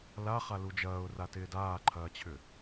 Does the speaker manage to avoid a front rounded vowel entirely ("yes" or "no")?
no